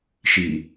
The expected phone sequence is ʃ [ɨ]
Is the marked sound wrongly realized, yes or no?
yes